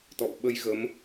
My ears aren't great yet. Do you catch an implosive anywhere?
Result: yes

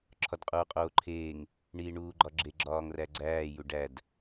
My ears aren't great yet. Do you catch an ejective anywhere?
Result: yes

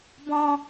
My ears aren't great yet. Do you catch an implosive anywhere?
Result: no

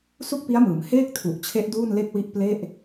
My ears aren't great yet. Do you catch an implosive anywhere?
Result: no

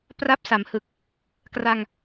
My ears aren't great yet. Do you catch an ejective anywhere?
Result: no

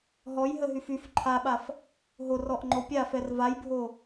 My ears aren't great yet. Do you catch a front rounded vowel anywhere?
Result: yes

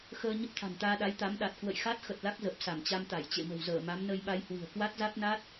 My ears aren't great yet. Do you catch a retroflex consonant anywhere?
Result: no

